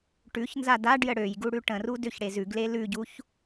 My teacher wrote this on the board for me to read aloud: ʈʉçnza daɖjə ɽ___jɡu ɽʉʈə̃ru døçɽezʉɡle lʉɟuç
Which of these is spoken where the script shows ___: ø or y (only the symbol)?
ø